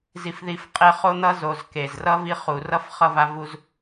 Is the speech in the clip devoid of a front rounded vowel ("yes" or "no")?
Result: yes